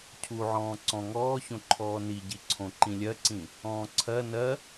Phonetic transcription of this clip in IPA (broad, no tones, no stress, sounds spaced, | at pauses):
cʰ u ʕ ɔ̃ː ǀ ɔ̃ ŋ ɔː ç õ ǃʰ ɔː n i ɟ i ǀʰ õ ǃ ĩ lʲ ɜ ǀ ĩ | ɔ̃ː ǀʰ ɜ n ɜ